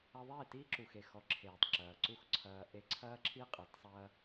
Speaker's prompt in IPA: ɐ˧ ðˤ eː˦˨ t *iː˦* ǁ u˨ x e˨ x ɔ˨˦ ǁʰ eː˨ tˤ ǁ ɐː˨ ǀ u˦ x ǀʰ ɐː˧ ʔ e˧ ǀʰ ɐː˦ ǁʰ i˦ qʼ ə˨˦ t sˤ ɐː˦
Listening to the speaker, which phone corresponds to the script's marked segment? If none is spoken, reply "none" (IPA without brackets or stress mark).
iː˦